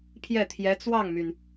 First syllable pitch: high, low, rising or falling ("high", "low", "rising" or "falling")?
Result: falling